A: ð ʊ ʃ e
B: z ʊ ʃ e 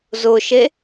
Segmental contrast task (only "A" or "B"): B